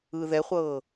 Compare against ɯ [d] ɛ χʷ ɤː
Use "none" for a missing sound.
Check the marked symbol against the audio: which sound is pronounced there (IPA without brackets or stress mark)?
ð